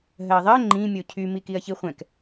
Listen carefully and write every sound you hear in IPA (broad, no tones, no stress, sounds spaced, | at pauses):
ɦ ɜ ðˤ ɜ ŋ͡ǃ ĩ mʲ o cʰ y m i k i ɐ̯ ç i χʷ ɛ̃ k